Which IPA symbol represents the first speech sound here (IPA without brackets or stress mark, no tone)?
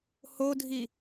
h